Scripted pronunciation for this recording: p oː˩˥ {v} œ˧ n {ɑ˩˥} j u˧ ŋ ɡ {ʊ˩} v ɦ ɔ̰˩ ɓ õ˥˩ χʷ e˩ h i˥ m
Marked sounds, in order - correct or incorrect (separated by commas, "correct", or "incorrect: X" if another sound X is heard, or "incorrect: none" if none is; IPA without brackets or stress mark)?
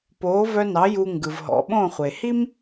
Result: correct, correct, incorrect: ɯ˩